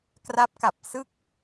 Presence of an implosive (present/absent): absent